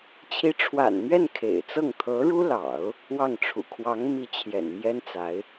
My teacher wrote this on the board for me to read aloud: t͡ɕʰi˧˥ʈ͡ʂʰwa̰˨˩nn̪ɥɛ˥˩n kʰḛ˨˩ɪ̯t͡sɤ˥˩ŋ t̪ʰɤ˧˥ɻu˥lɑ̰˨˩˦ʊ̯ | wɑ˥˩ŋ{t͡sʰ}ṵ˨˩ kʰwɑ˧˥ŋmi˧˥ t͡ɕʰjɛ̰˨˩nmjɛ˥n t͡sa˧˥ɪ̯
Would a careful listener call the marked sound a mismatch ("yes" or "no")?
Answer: yes